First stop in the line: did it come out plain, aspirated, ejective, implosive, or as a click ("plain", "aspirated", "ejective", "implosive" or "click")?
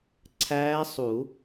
click